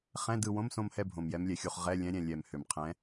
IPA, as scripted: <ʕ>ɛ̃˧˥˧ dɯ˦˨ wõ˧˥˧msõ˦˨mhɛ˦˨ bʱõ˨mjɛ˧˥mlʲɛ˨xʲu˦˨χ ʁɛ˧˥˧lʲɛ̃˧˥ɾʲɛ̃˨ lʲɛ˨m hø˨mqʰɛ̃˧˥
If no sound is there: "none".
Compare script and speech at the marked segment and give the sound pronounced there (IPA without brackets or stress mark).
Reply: χ